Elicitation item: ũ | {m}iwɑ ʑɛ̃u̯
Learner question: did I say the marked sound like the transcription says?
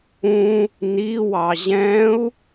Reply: no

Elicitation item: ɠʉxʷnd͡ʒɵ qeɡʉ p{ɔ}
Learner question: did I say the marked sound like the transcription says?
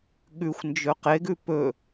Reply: no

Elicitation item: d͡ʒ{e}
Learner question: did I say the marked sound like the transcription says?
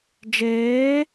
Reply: no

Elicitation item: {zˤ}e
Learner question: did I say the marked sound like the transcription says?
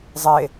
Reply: yes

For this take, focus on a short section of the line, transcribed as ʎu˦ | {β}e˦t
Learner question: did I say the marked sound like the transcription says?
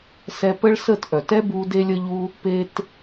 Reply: no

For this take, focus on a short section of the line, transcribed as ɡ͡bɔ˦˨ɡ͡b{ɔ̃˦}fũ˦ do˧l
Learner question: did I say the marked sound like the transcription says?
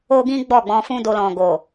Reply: no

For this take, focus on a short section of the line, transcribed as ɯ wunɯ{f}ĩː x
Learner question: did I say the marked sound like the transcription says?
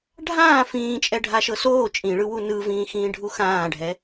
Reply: no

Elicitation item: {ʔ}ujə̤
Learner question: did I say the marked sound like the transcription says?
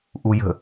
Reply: yes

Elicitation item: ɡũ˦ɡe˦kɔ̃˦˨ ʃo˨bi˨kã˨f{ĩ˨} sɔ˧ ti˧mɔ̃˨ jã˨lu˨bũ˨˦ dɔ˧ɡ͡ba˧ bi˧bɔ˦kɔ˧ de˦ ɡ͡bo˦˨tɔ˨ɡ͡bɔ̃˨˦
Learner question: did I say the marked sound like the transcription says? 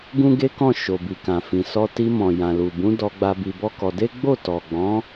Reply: yes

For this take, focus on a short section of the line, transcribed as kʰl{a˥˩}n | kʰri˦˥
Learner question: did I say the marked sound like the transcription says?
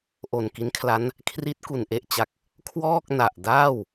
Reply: no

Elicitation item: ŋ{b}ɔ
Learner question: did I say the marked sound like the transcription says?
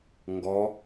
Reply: no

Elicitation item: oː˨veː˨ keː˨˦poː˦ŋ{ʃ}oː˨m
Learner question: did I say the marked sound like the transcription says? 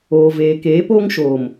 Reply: yes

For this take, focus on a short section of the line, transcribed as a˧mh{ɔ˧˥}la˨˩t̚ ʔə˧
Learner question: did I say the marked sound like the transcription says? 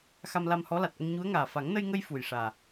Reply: yes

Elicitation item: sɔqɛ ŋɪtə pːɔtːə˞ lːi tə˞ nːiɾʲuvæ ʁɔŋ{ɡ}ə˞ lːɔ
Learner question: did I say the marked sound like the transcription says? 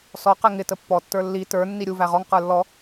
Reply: no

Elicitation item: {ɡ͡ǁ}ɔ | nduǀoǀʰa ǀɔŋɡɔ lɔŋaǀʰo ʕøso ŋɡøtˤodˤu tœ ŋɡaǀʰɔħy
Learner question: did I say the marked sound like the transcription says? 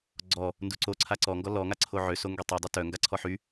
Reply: no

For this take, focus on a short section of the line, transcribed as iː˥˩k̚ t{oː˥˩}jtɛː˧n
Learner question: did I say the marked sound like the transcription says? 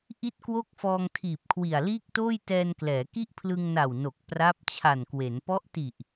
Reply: yes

